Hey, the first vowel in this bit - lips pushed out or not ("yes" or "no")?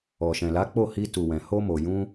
yes